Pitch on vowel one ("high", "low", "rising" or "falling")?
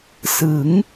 rising